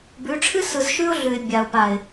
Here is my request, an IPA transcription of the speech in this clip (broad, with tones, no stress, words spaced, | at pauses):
bʉ˨˦ ʈ͡ʂʰɨ˦sɯ˨zʃʉ˦ʊ̯ ɮʉ˨ɪ̯bʲa˨ʊ̯pa˨ɪ̯